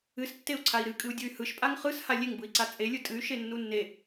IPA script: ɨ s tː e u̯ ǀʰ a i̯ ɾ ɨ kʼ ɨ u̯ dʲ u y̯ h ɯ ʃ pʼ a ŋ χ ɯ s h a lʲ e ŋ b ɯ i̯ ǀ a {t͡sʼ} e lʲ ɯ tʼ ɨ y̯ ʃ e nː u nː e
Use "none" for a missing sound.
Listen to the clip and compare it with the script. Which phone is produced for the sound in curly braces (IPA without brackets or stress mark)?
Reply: t͡sʼ